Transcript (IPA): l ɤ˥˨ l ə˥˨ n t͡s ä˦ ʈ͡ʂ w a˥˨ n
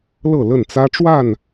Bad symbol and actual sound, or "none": none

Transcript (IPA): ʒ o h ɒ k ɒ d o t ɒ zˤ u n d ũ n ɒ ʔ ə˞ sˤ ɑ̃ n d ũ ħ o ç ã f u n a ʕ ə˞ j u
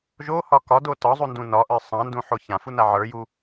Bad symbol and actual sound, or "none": none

